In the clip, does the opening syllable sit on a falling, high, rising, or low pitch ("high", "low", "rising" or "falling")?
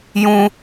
high